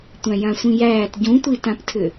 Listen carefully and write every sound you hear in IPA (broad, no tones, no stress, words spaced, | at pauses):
tʷæ̃jãsʷĩjæːt ɟũtʷitãptʰʏ